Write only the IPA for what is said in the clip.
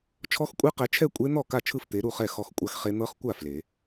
t͡ʃʰɔ˦˥xkʷʼe˦˥qɛ˨˦t͡ʃʰɛ˥˧ kʷʼe˦˥ n̪ɔ˥˩ka˥˩ t͡ʃʰɯ˥˩ft̪e˨˦ɾu˥˩χɛ˥˩ xɔ˥˧xkʷʼa˦˥xχe˦˥ n̪ɤ˦˥χkʷa˥˩ fle˨˩˦

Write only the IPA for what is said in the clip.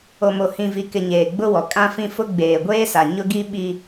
o˨mo˨ hĩ˨vi˨kɪ˨ ɲeː˨ɡ͡bʊ˦wɔ˨ kʼã˦fĩ˦fʊ˦ ɡ͡beː˨ɡʷeː˦sa˨ ɲʊ˦ɡi˦ɓi˨

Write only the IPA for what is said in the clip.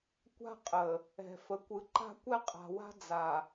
kʷa̤˦qʼə˨ | ɛ̤˨fə˨kʷɯ˨ ǃa̤˦kʷɛ˦qʼa̤˨wa̤˦ d͡za˨

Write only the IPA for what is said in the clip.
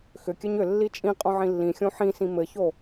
xʏ kʲɘɲʏ lːit͡ʃʼĩqʼõʕĩ lːĩxʲõ ħĩsĩ mɘço

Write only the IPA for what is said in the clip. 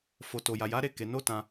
fo˨ to˧ja˧ ja˦ ɾe˦˨ke˨˦ no˦˨ tã˧

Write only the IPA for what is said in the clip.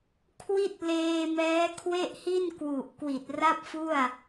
kʰwi˥˩t̚ leː˧mɛː˦˥ kʰwe˥˩ʔhi˥˩n kwu˨˩ʔ kwi˨˩t̚ra˥˩p̚fu˥˩a̯

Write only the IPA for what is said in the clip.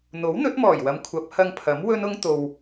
n̪o˨˥wn̪ɵ˨˥t̚mɔː˨˩jwɐ˨˧m kʷʰɐ˨˥p̚hɐ˧ŋpʰɐ˨˥m wɵ˥nʊ˥ŋt̪o˧w

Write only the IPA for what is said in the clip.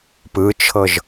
pɯt͡ʃʰɤʒ

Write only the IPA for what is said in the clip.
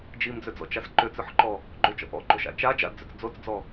d͡ʒimd͡zʏd͡zɔ̰t͡ʃas ǃʏt͡sʏħǃɔ | ɡ͡ǃʏt͡ʃɔ̰ ʔɔ̰ɡ͡ǃoʃa̰ t͡ʃa d͡ʒa̰dd͡zʏt͡s d͡zot͡sd͡zɔ

